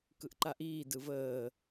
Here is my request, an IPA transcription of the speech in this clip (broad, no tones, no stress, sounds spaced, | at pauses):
k ɯ ʔ ǃ a ʔ iː d ɯ v əː